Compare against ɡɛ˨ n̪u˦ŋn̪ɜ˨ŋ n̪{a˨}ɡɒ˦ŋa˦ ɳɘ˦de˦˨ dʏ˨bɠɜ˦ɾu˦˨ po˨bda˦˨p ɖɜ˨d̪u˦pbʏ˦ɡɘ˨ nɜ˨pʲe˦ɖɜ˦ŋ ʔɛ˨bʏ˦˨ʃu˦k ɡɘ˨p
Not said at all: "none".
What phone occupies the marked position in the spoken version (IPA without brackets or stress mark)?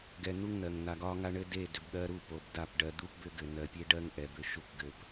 a˨